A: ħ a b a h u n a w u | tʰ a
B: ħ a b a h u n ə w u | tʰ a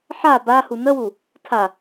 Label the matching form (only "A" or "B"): B